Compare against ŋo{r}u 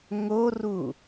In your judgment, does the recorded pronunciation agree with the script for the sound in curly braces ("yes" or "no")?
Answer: yes